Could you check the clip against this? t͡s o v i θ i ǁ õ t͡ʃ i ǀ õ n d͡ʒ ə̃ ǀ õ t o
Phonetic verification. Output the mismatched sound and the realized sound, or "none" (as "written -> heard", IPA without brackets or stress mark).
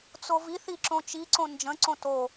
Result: none